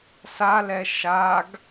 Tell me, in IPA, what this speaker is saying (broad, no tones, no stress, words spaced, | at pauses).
salɛ ʃaɡ